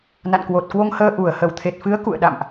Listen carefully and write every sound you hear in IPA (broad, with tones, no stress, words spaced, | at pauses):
na̰˧˨nkwo˨˩t̚kwo˧ŋhəː˧ ʔu˨˩ə̯ hə˧˩wt̪ʰe˨˩t̚fɨ˨˦ə̯ kṵ˧˨ə̯ɗa̰˧˨mʔ